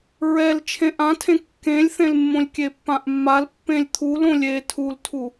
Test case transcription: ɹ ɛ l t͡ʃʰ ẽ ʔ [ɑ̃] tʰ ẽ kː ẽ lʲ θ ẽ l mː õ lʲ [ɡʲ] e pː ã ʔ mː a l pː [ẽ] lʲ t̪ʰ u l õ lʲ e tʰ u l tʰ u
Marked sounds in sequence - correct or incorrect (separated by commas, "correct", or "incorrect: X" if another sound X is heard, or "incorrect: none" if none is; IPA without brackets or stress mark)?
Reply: incorrect: ã, incorrect: kʲ, correct